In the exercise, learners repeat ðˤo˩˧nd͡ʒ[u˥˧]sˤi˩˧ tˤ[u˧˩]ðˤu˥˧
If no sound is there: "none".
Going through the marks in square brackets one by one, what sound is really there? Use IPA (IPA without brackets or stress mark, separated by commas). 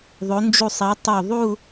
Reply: u˧˩, u˧˩